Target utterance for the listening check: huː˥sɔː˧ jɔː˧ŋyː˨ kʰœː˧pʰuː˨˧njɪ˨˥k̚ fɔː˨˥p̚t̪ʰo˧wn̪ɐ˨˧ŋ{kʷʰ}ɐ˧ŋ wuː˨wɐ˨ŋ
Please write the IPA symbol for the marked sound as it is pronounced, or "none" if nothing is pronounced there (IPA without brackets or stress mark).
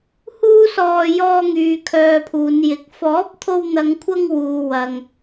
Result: kʷʰ